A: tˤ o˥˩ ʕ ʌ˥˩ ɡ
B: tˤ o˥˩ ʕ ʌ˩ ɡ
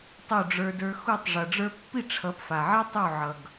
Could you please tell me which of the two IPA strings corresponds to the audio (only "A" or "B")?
B